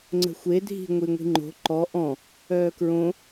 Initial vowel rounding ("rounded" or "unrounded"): unrounded